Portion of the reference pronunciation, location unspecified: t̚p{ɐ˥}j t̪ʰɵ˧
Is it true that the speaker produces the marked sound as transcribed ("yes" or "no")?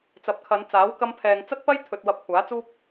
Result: yes